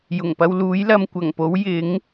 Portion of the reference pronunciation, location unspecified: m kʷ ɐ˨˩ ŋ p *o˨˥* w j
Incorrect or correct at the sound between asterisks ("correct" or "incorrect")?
correct